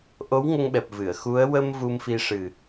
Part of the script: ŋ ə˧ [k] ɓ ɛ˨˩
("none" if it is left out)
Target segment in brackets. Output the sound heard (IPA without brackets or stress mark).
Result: ŋ